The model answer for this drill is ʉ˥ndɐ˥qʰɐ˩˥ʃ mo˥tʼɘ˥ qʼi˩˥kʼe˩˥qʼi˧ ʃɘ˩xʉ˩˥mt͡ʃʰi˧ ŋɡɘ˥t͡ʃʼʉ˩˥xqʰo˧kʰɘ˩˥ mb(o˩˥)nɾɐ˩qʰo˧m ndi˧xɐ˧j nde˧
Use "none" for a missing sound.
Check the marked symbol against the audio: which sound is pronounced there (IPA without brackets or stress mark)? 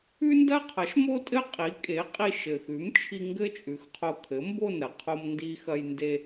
o˥˩